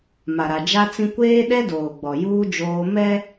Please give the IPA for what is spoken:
m a˨ ɾ a˨ d͡ʒ a˦ t͡s ĩ˦ kʷ eː˦ ɗ ɛ˦ d oː˨ ɡ͡b ɔ˨ j uː˦ d͡ʒ oː˦ m ɛ˦

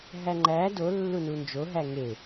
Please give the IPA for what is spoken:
ɦ æ ŋ͡ǃ æ d o lː u n u n d͡ʒ o ɦ æ ŋ e

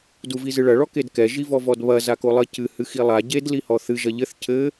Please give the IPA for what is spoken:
d u v i z ɨ ɭ ɐ ɭ ɔ k e d k ɛ ʒ i v ɔ v ɔ d β ɐ z a k o lˠ ɘ c ɨ h ɨ x i lˠ a ɟ e d l i h ɔ θ ɨ ʒ ɐ ʎ ɘ θ cʰ ɘ

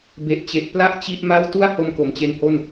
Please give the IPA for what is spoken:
b e˨˩ ʔ t͡ɕ e˨˩ ʔ p l a˥˩ ʔ t͡ɕ i˥˩ ʔ m a˥˩ w t u˥˩ a̯ h o˧ m k o˨˩ m t͡ɕ e˦˥ n h o˥˩ n

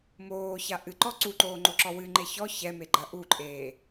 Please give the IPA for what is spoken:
m oː ç a ʔ ɨ ǃ ɔ ǀ u ǃ oː ŋ͡ǃ o ǁ ɔ w ɨ ŋ͡ǃ e ç ɔ ç ɛ m e ɡ͡ǃ ɐ ʔ u ǃʼ eː

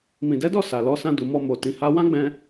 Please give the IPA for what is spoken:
m ĩ˨ d ɛ˨˦ d ɔ˦˨ s a˨ l ɔ˨˦ s ã˧ d u˨ m ɔ˧ m o˨ t ĩ˨˦ h a˦ w ã˦ ɡ͡b ɛ̃˧

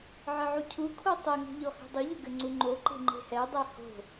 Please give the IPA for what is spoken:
ʕ ɘ ʕ u cʰ u kʰ o tˤ ɛ ŋ ṳ ʎ ɔ h e̤ dˤ u ʎ ɘ ɡ ɘ ŋ͡ǀ u ŋ͡ǃ o ǃ e̤ ŋ͡ǃ e̤ h ɛ dˤ ɛ h o̤

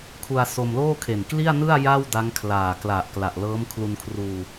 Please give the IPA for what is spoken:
kʰ u˧ a̯ s o˧ m l oː˥˩ kʰ e˨˩ n k l i˥˩ a̯ n ɯ˥˩ a̯ j a˥˩ w d a˦˥ ŋ kʰ l aː˨˩ k l a˨˩ ʔ k l a˨˩ ʔ l ɤː˦˥ m kʰ l u˧ n kʰ r uː˧

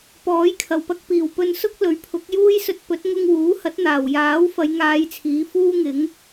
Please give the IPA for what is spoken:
p ɔː˨˥ j kʰ ɐ˨˩ w p ɐ˧ k̚ p iː˨˩ w p ɵ˧ n s ʊ˥ k̚ l ɵ˨˥ ɥ pʰ ʊ˨˥ k̚ j uː˥ j s ɵ˧ t̚ p ɵ˨˥ t̚ ŋ ʊ˧ ŋ w uː˨˥ h ɐ˨˥ t̚ n̪ aː˨˩ w j aː˨˥ w f ɐ˨˧ j ŋ aː˨˧ j t͡sʰ iː˨˥ f uː˥ ŋ ɪ˨˥ ŋ

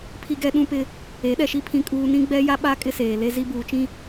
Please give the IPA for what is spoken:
pʰ i˦ ɡ ɛ˦ ɗ ũ˦ p ɪ˦ | e˨˦ ɗ ɛ˨ ʃ i˦ pʰ ĩ˦ kʼ uː˦ n ĩ˦ ɡ͡b ɛ˦ j a˦ ɓ a˦ kʼ ɪ˦ s eː˨ l e˦ z i˦ b uː˨ t͡ʃ ĩ˦

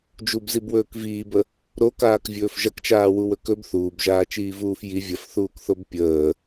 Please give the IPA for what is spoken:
d͡ʒ u b z i b w ɵː k v iː b ə | ɾ o k aː k vʲ ɵː f ʒ ɐ k t͡ʃ aː w u w ɵ k ɵ b θ uː b ʒ aː t͡ʃ iː v uː f j i vʲ ɐ f θ uː k θ o b pʲ əː

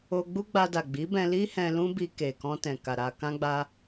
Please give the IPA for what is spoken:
o˧ ɡ͡b u˦ ɡ͡b a˧ d a˨ ɡ͡b i˨˦ b ɛ̃˧ l i˦ h ɛ̃˧ l ũ˦ b i˧ k e˨ k ɔ̃˧ t ɛ̃˨ k a˨ ɾ a˨ k ã˧ ɡ͡b a˧

